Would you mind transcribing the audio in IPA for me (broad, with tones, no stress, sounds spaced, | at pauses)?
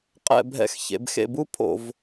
qʼ ɛ̰˦˨ bʱ ɛ̰˦˨ x ç ḛ˩˧ b x ḛ˦˨ b u˦˥ pʰ o̰˧˩˧ v